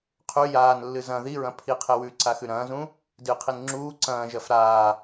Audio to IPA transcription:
qʰ ʉ j aː n lː ɨ z ɐ̃ ð i ɹ ɐ̃ pʰ i qʰ e w ʉ ǀ a x ʉ ɾ ɐ̃ː z ũ | d ɨ qʰ i n ŋ͡ǁ uː ǀ ɐ̃ː ʒ ɐ f ɾ aː

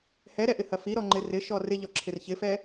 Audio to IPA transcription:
h ɛ ɾ ɛ ʔ ɪ h ɐ f i ɾ ɔ ŋ͡ǃ ɪ r ɪ ʃ ɔ r ɪ ʎ ɔ ǁʰ ɪ r ç ɪ f ɛ

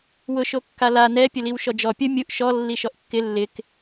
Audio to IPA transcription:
w ʊ ʃ o kː a l a n ɛ pʲ ʊ l i w ʃ ɔ d͡ʒ ɔ pʲ ʊ mʲ u ʔ ʃ ɔ lː i ʃ ɔ ʔ kː ɪ lː ɪ k

